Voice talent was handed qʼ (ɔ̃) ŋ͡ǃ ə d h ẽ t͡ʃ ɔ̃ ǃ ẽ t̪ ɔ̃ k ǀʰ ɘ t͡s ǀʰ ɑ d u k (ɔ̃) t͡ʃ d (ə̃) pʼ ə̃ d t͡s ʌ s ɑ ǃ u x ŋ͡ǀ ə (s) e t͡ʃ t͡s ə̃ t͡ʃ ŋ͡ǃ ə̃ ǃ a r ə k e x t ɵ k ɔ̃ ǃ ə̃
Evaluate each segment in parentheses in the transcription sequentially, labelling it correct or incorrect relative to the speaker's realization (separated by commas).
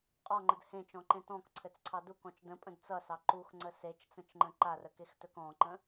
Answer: incorrect, correct, correct, correct